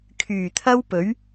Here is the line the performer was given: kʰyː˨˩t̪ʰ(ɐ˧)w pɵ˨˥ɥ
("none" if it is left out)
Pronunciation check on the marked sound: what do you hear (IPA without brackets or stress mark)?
ɐ˥